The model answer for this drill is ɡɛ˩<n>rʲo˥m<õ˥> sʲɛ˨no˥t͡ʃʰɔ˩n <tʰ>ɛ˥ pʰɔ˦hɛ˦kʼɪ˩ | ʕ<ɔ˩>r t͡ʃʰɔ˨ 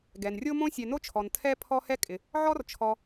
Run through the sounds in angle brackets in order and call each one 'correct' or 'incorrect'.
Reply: correct, correct, correct, incorrect

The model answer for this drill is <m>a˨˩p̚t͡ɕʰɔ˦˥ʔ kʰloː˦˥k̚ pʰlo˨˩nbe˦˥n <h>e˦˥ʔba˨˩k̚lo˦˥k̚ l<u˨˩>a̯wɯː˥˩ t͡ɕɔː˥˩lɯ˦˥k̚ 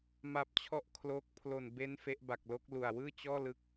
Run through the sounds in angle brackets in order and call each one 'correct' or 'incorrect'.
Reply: correct, incorrect, correct

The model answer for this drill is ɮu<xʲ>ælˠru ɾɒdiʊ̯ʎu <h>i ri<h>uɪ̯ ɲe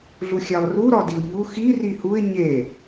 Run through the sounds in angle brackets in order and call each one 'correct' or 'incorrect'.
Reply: correct, incorrect, correct

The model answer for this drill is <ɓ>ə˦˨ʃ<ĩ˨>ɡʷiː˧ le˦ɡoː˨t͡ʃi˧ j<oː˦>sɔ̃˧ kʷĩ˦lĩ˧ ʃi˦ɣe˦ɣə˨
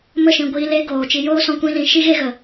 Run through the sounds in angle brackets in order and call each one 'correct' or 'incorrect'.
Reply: incorrect, correct, correct

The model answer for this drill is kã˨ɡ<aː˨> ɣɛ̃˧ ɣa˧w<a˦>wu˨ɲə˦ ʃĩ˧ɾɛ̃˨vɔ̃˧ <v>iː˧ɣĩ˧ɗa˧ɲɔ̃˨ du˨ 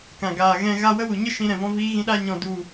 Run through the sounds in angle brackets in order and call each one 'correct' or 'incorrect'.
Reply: correct, incorrect, correct

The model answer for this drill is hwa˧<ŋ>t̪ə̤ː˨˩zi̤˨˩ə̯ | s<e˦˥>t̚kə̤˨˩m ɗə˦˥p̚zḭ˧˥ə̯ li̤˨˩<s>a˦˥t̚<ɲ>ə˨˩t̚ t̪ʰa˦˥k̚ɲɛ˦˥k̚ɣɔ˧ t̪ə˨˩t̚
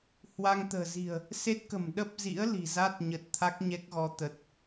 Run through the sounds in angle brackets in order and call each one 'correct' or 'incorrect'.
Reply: correct, correct, incorrect, correct

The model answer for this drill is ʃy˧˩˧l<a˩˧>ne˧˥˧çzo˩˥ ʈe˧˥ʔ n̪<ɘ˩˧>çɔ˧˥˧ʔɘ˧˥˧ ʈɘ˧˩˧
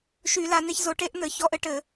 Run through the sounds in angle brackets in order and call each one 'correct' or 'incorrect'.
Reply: correct, correct

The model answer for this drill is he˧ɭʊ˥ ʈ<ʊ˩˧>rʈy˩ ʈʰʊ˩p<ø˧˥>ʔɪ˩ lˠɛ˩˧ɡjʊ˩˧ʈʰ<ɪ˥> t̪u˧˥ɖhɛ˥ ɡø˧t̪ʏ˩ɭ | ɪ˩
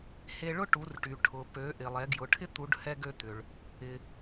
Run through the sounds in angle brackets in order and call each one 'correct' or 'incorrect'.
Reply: incorrect, incorrect, correct

